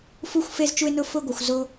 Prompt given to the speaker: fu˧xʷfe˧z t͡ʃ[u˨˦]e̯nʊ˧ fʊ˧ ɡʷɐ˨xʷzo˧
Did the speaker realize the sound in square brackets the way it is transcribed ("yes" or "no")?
no